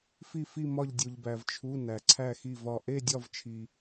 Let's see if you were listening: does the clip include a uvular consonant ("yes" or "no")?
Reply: no